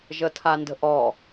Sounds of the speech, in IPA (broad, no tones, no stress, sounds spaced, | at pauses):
ʒ ə tʰ a n d ə̤ ʔ ɔ